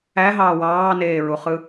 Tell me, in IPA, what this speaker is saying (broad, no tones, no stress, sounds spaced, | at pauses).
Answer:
æ ɦ ɑː w ɑː n eː ɹ u χ ɯ